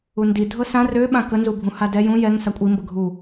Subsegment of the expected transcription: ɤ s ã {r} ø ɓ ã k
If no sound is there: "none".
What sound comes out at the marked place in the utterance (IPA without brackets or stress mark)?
r